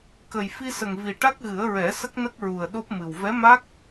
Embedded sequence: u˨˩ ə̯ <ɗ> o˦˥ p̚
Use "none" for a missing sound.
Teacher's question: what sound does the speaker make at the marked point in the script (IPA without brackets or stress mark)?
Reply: ɗ